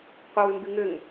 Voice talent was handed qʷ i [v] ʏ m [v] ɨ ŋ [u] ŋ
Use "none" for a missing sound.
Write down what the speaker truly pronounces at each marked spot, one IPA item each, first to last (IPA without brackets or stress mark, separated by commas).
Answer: w, b, ʏ